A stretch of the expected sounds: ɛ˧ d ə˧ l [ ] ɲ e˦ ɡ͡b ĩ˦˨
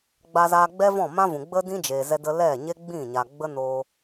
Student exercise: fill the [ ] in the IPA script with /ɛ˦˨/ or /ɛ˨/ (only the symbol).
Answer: ɛ˦˨